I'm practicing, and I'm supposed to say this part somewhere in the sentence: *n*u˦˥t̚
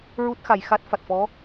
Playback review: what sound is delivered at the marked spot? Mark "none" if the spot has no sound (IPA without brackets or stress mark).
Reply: ɹ